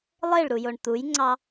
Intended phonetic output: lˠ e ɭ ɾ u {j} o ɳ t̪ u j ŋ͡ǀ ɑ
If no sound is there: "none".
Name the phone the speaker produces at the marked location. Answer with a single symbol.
j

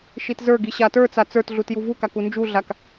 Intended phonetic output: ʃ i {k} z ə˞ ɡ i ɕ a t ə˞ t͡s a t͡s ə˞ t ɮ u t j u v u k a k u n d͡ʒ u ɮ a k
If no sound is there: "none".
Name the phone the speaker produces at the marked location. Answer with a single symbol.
t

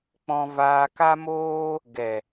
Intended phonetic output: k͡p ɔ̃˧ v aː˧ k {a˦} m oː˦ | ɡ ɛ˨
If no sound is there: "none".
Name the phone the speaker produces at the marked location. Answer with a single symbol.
a˦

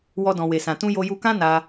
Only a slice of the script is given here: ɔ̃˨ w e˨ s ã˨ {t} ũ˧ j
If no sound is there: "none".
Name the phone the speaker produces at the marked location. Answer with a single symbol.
t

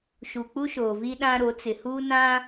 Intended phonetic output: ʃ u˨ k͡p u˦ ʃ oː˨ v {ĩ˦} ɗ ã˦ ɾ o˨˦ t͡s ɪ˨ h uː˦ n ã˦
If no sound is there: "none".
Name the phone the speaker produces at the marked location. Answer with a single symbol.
i˦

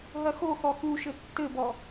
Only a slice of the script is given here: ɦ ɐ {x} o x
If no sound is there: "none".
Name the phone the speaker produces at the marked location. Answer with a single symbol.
x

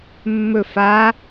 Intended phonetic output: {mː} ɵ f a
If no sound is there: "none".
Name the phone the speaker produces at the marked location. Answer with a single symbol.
mː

